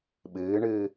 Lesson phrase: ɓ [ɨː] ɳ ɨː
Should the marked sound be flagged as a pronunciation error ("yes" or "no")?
no